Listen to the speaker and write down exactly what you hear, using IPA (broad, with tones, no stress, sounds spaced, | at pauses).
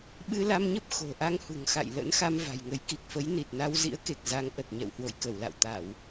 ɓ ɨ˧ l a˧ m ɲ ə˦˥ p̚ x o̤˨˩ ʔ a˧ ŋ h ṳ˨˩ ŋ x a̰˧˨ j l ə̰˧˥ n x a˧ m v a̤˨˩ j ŋ ə˨˦ j k i˨˩ k̚ f ə˨˦ j n i˨˩ t̚ n a˧ w z ḭ˧˥ ə̯ k e˨˩ k̚ z a˨˦ ŋ ʔ ə˨˩ t̚ ɲ ɛ̰˧˨ w h w o̰˧˨ j k ə˧˩ w l a̰˧˨ w t̪ a˧˩˨ w